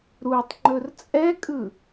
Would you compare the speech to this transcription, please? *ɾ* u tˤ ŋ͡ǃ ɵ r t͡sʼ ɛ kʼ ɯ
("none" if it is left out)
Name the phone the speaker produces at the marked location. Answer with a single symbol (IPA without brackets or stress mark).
ɾ